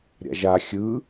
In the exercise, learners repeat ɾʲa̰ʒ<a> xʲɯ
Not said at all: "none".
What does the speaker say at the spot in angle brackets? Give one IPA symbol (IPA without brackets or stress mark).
a